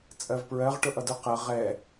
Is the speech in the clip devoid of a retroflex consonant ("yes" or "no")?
no